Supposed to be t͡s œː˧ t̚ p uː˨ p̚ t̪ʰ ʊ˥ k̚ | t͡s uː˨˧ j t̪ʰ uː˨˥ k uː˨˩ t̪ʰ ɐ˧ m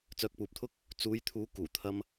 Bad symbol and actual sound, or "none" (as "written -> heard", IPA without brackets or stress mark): t̚ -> k̚